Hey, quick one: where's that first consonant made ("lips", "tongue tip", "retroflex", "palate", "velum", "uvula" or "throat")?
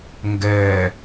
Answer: velum